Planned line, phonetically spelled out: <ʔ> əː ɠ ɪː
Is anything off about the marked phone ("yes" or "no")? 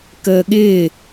yes